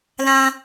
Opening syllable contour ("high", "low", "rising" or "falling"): high